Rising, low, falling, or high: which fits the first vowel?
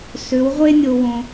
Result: rising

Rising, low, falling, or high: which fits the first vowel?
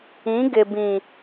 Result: rising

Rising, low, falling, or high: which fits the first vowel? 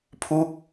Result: falling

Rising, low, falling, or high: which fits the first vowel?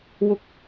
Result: high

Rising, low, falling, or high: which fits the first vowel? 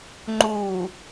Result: low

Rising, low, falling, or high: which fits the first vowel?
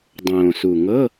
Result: low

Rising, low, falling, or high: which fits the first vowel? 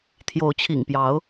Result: rising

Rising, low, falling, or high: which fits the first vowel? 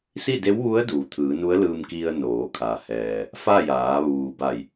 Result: falling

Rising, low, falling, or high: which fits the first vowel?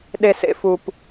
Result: low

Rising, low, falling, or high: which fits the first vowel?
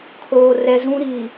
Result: low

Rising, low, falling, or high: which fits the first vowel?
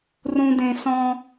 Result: low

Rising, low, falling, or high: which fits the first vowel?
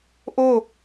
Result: falling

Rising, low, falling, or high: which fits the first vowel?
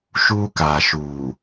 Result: high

